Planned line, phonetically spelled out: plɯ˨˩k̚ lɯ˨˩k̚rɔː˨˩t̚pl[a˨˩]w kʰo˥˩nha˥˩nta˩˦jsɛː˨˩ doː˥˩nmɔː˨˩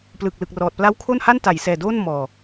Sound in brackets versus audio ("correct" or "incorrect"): incorrect